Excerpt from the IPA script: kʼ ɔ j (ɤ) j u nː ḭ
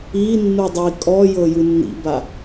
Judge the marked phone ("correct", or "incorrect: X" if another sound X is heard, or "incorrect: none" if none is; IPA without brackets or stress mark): correct